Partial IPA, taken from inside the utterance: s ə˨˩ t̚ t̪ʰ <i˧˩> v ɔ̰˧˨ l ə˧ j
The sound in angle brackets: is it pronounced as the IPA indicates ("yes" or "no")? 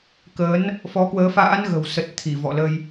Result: yes